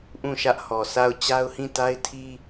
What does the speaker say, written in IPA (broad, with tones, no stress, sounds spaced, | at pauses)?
ʔ ũ˦˨ ʃ ä˦ ʔ h ɔ˨ s a˦˨ ʊ̯ t͡ɕ a˦ ʊ̯ h ĩ˦˨ t a˦ ɪ̯ tʰ i˦